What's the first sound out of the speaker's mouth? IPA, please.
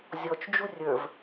zʲ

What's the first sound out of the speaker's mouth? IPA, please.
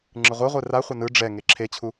ŋ͡ǁ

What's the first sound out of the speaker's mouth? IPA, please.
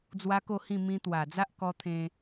d͡z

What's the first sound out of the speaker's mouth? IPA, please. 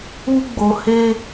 u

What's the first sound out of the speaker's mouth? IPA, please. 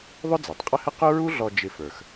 ðˤ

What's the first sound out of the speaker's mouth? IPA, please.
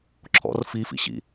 ǁʰ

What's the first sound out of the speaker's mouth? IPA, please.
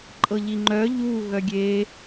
ǃʼ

